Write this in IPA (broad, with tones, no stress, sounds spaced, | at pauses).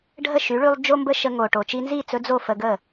ɖʱ ə˥˩ ʃ y˩˥ ɭ y˧ lˠ d͡ʒ o˥ m b ə˥ ʃ ə˧ ŋ o˩ ʈ o˩ t͡ʃ i˧ n z i˥˩ t͡s ɵ˧ d͡z o˥˩ f ə˧ ɡ ə˥˩